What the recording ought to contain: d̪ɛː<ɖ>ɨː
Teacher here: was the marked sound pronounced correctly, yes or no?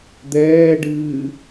yes